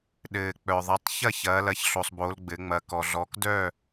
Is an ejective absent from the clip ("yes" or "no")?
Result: yes